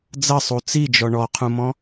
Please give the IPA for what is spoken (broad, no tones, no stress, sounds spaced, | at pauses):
d͡z ɐ sˤ u t͡s i d͡ʒ ɔ ɳ ɔ qʰ ũ m ɔ̃